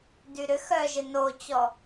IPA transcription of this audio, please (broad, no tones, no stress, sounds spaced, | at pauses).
d y ɾ ʏ x œ ʒ ɪ n o t͡ɕ ɔ